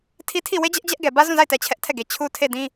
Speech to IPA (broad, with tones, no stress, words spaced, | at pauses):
tʰi˦tʰi˦˨ we˦d͡ʑɛ˦ʔ d͡ʑɛ˦ʔɡɛ˨ bä˦zũ˦˨za˦˨ɪ̯tɛ˨ t͡ɕʰɛ˦ʔtʰɛ˦˨ɡe˨ t͡ɕʰu˦tʰe˦˨dĩ˦